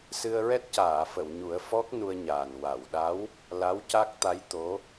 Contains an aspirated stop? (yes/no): no